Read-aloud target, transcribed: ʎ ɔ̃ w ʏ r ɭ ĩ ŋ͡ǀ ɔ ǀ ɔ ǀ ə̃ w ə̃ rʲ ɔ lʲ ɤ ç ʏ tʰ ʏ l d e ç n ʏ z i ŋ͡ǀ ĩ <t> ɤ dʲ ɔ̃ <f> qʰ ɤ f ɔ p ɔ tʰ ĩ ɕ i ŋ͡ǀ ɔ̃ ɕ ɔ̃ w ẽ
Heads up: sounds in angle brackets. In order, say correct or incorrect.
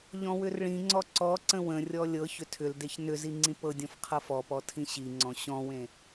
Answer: incorrect: p, correct

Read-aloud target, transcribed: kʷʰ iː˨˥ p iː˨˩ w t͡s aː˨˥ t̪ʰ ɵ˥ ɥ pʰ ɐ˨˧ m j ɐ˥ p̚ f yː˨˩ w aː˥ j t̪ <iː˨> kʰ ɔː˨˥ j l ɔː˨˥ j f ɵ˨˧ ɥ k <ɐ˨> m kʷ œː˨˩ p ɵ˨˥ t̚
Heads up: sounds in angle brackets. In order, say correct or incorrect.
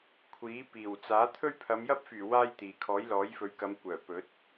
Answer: correct, incorrect: ɐ˨˧

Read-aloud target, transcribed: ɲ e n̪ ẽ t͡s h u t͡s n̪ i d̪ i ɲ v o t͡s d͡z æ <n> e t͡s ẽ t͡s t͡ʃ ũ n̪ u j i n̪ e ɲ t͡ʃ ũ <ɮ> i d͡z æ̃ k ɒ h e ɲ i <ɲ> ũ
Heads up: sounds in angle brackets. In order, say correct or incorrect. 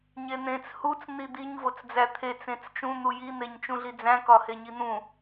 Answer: incorrect: t̪ʰ, correct, incorrect: n̪

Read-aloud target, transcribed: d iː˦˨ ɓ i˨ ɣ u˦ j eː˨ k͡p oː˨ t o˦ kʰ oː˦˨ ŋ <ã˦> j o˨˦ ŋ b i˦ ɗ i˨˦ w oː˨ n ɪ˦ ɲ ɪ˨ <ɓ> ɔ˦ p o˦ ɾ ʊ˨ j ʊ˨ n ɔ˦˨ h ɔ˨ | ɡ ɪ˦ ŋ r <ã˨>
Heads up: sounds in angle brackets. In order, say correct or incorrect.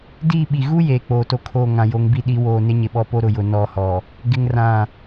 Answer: incorrect: ã˨, correct, incorrect: ã˦˨

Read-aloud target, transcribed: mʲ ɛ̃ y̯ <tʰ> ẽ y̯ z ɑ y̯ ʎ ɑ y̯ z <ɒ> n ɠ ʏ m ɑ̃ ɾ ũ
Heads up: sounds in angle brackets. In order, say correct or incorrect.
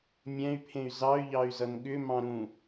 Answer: incorrect: pʰ, incorrect: ʌ

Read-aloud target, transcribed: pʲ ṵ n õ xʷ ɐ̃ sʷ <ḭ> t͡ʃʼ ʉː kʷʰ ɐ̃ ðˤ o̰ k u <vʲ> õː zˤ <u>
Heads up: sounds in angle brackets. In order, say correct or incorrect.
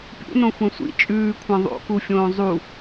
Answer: correct, incorrect: fʲ, correct

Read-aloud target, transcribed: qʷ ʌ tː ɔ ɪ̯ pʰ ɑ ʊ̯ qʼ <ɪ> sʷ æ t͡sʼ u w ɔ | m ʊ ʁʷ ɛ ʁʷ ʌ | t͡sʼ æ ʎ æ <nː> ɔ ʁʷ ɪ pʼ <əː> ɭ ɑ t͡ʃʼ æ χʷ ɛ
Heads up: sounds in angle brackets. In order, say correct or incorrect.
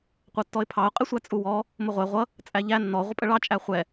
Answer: correct, correct, incorrect: ə

